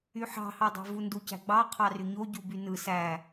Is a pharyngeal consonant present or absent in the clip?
present